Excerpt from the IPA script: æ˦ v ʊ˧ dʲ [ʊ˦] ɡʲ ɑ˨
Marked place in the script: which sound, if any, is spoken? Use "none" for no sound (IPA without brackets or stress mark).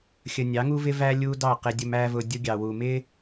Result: ʊ˦